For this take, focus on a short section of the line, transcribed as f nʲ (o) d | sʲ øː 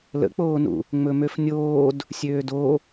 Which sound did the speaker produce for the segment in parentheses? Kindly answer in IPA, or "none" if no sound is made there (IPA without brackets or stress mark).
oː